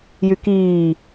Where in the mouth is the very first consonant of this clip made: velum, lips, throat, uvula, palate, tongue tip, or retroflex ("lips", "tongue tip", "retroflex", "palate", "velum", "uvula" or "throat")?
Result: palate